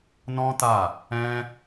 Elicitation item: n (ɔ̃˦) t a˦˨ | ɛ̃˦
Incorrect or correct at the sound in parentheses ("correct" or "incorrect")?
correct